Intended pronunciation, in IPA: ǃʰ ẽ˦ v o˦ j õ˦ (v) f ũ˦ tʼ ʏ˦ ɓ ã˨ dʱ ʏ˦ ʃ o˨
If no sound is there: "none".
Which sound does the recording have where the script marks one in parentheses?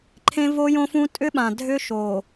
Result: none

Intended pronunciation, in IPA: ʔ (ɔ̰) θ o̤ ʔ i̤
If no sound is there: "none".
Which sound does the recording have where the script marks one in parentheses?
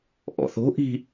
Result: ɔ̰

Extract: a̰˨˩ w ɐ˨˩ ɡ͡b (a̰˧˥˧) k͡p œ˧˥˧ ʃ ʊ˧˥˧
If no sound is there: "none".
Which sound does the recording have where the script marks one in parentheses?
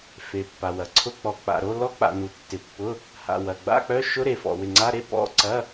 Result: a̰˧˥˧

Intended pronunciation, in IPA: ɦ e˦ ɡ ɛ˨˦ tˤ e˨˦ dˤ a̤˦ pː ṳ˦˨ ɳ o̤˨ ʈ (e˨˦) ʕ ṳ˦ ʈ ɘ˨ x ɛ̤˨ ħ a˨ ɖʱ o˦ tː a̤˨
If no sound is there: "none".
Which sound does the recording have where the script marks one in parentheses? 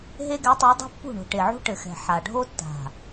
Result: e˨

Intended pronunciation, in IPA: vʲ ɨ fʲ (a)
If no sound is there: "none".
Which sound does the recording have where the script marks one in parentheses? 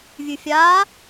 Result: aː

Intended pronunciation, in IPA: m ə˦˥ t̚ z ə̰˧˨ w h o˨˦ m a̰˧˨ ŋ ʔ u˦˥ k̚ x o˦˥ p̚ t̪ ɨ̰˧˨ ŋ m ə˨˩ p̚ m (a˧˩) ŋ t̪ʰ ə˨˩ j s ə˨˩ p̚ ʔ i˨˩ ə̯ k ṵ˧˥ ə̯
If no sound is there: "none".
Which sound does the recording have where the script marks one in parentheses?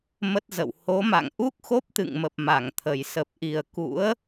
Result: a˧˩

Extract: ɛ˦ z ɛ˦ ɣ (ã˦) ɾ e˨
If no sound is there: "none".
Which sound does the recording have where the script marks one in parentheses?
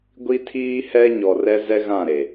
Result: ã˦˨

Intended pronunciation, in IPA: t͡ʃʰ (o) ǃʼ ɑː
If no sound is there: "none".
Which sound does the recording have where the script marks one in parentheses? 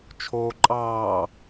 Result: oː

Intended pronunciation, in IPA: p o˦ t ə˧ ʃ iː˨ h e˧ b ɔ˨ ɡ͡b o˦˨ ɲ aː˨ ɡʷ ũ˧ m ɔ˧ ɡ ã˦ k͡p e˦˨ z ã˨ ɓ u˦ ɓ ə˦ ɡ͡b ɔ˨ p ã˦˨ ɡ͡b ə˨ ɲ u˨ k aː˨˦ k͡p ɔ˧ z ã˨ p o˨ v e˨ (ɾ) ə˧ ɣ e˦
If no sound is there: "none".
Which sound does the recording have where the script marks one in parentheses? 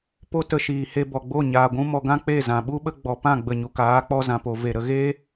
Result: ɾ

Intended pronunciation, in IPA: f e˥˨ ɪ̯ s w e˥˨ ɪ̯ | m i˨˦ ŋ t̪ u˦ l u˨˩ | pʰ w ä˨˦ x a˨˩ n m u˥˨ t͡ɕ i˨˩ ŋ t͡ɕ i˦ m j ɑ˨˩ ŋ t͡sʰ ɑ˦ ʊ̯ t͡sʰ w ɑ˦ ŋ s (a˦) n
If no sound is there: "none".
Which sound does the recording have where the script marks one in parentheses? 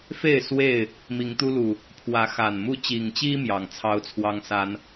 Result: a˨˦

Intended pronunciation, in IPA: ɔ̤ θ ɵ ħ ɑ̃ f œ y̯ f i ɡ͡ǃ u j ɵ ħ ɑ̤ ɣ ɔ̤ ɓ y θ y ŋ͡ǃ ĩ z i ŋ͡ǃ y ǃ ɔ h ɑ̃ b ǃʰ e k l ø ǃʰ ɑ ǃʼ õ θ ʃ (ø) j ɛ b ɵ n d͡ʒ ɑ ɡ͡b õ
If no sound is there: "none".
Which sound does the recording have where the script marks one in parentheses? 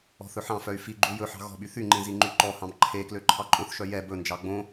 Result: œ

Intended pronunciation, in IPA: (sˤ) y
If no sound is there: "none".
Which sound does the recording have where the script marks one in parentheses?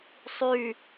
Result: sˤ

